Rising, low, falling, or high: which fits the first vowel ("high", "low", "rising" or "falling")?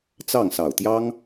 falling